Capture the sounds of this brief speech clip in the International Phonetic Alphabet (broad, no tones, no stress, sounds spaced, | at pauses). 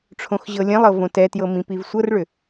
ʈ͡ʂʰ õ x ʑ ɤ lʲ ẽ lˠ ɤ v õ t ɛ t j ɤ m ĩ p i v sʷ ɤ r ɭ ʏ